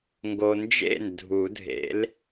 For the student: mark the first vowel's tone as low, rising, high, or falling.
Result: low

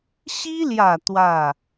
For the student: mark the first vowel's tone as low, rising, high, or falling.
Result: high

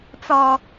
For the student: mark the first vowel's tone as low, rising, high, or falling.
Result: low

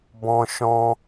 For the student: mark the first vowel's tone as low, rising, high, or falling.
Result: high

